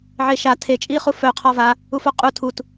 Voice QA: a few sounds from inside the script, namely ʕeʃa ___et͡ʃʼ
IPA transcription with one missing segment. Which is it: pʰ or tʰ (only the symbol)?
tʰ